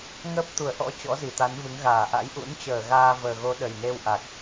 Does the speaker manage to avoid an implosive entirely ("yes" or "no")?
no